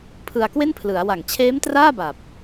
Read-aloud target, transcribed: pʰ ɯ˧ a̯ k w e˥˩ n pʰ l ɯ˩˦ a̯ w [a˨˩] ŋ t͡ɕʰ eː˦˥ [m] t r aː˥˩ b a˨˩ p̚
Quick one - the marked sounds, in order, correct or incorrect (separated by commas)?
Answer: correct, correct